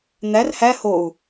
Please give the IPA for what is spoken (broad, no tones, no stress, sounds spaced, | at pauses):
n̪ æ r h æ h o u̯